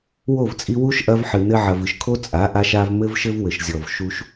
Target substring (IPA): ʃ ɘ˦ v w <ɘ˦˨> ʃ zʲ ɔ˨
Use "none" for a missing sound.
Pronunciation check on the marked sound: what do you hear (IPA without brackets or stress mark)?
ɘ˨